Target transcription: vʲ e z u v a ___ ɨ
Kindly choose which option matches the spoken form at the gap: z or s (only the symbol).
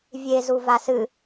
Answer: s